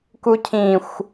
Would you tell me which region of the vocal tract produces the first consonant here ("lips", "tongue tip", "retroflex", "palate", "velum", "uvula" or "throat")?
velum